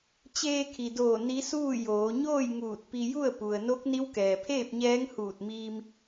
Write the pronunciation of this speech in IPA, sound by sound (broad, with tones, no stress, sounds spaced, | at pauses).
t͡ɕ eː˧ kʰ i˩ d oː˧˩ n i˧˥ s uː˥˨ j oː˩˧ ɲ oː˥˨ j ŋ uː˧˩ t̚ p i˧ j u˥˨ ə̯ p u˩ ə̯ n o˧˥ k̚ n i˧˥ w k ɛː˩ pʰ eː˥˨ p̚ ɲ ɛː˧˥ ŋ h uː˧˩ t̚ m iː˧ m